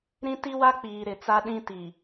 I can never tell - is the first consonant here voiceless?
no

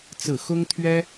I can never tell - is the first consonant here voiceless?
yes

